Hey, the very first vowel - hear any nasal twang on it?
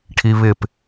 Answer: no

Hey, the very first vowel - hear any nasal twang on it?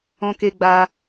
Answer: yes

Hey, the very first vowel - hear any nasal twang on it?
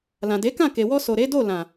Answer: yes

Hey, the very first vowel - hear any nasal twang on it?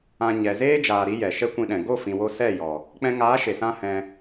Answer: yes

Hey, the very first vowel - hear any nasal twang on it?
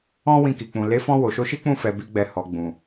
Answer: yes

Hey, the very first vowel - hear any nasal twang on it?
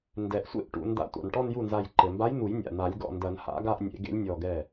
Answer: no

